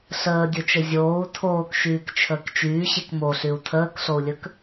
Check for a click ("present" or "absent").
absent